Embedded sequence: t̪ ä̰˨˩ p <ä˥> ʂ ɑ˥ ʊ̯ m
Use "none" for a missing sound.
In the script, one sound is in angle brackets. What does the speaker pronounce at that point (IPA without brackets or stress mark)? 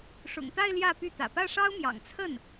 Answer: ä˥˩